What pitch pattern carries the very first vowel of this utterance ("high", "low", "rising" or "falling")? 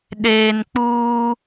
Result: low